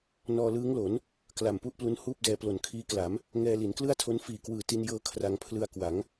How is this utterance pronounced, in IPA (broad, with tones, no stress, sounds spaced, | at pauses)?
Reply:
n ɔː˧ l ɯː˦˥ ŋ l o˩˦ n | k l a˨˩ m p u˥˩ ʔ p l u˦˥ n h uː˥˩ p̚ d ɛː˧ p l o˨˩ n kʰ iː˦˥ k l a˩˦ m | ŋ ɛː˧ l i˩˦ n k l ɯ˥˩ a̯ tʰ o˦˥ n f iː˨˩ k w ɯː˨˩ t i˧ n j ɤː˧ kʰ r a˧ ŋ pʰ l ɯ˧ a̯ k w a˩˦ ŋ